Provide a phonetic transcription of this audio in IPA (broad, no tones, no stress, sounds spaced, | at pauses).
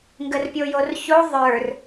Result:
ŋ ɡ ə r pʲ o j o r ç o ðˤ ə˞ r